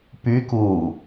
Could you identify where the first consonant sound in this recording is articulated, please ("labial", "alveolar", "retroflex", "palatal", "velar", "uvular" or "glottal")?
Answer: labial